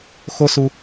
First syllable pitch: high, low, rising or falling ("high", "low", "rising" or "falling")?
high